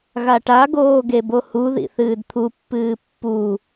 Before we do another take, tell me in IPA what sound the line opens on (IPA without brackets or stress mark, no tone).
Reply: ɣ